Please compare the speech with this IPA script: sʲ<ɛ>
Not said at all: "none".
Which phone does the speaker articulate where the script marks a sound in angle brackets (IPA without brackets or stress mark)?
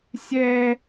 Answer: ɛ